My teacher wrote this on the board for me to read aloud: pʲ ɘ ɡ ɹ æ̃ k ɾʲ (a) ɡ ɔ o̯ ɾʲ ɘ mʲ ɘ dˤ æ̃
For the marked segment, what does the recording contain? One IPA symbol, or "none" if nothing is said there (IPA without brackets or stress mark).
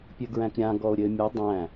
ã